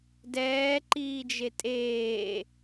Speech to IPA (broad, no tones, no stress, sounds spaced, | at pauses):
d ɛː ǃ iː d͡ʒ e tʼ eː